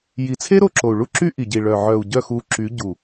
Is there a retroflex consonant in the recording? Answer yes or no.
yes